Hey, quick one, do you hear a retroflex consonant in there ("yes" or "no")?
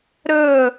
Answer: no